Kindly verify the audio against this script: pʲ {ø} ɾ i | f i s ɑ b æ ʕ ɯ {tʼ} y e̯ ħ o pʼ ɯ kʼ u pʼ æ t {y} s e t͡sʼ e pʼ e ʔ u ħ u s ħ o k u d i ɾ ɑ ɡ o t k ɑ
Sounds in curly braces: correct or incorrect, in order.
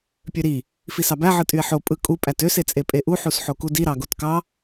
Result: correct, correct, incorrect

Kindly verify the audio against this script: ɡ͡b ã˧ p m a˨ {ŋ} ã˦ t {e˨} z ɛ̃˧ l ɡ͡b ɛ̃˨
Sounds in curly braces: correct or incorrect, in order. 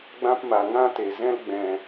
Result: correct, correct

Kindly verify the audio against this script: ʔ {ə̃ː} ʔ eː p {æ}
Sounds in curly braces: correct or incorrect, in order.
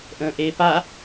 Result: correct, incorrect

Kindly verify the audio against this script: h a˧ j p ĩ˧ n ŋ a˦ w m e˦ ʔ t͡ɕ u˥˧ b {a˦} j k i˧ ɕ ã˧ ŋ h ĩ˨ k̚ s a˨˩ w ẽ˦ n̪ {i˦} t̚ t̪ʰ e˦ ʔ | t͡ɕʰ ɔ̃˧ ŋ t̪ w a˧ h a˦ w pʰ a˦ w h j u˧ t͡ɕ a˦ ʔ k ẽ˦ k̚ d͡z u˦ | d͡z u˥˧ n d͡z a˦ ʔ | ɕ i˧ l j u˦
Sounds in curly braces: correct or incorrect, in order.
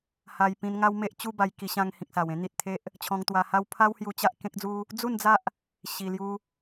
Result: incorrect, incorrect

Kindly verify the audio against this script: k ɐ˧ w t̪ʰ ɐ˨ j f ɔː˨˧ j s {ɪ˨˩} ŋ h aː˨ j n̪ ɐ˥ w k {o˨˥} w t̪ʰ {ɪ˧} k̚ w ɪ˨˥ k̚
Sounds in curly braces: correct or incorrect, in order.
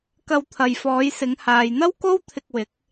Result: incorrect, incorrect, correct

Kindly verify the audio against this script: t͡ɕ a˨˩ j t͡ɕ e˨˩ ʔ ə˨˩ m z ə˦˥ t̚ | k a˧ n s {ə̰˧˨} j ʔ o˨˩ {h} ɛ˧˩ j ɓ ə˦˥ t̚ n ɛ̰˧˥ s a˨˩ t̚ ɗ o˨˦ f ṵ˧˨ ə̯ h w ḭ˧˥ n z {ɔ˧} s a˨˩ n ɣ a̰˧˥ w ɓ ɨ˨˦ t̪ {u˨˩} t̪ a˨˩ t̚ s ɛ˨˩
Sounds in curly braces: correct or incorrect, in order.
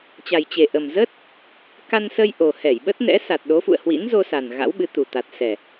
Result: incorrect, correct, incorrect, correct

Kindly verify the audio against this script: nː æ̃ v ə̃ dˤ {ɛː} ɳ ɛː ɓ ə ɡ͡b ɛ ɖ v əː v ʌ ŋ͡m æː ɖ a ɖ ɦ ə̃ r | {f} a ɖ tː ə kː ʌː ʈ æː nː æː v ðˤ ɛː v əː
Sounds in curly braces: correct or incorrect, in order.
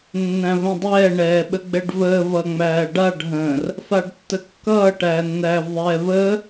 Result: correct, correct

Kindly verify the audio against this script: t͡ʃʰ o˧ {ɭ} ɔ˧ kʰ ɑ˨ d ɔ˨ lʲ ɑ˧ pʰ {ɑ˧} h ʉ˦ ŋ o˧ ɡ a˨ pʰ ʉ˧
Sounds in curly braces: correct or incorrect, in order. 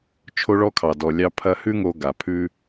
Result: correct, incorrect

